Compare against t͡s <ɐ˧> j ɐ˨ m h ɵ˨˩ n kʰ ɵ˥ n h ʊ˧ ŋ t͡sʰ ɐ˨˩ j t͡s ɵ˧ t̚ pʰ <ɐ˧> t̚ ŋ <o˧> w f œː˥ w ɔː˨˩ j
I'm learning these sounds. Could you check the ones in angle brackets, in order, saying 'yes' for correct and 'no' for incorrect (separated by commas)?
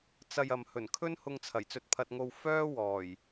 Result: yes, yes, yes